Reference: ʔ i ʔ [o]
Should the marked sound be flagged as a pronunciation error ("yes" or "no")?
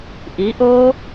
no